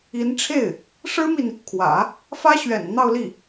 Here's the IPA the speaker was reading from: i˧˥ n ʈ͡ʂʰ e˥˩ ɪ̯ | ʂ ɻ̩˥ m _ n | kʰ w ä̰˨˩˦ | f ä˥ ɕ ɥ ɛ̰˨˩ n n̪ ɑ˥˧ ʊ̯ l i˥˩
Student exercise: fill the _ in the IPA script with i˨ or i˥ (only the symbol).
i˨